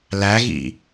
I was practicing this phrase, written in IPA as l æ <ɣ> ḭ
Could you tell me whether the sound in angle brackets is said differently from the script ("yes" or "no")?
no